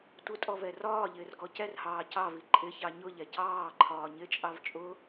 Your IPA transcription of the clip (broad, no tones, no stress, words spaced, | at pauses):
tʷɪtʼɔvɛ rɒːʎɪːrɡɔ cɛrhɑː cɑvi ǃʼɪçɑ ɲʊʎɛ cɑːǃʰɒː ɲɪt͡ʃʼɑv t͡ʃʼʊ